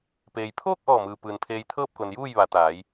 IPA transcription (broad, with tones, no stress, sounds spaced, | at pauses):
p eː˩ j pʰ oː˥˨ k̚ ʔ ɔː˧˩ m ɯː˩ p ɯː˩ n pʰ eː˧ j t̪ʰ ɤː˥˨ p̚ k o˩ n j uː˥˨ j ʋ a˩˧ t̪ aː˩˧ j